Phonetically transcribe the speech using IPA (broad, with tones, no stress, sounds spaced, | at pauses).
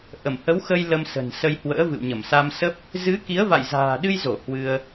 ʔ ə˧˩ m h ə˨˦ w x ə˧ j l ə˧ m s ə̤˨˩ n s ə˧ j h w ə̰ː˧˥ v ɨ̰˧˨ w ɲ ə˧˩ m s a˧ m s ə˦˥ p̚ | z ɨ˨˦ k i˨˦ ə̯ v a̰˧˨ j z a̤ː˨˩ ɗ ɨ˧ j z o˧˩ h w ɨ˧ ə̯